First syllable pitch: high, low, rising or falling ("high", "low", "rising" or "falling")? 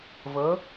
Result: rising